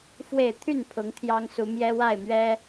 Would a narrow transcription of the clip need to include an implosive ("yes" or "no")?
no